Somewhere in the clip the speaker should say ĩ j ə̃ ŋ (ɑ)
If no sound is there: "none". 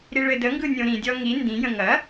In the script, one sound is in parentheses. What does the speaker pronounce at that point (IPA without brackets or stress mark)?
ɐ